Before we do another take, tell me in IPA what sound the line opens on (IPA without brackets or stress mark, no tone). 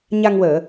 ɲ